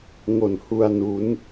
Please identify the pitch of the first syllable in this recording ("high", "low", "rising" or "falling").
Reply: low